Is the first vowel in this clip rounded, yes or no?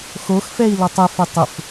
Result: yes